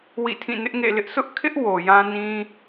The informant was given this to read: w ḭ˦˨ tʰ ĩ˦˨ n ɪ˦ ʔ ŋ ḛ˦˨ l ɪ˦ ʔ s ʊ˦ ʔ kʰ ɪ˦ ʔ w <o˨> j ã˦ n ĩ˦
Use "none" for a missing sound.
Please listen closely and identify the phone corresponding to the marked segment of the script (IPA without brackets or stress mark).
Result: o˨